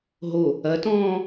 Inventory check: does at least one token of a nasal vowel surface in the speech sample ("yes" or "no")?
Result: yes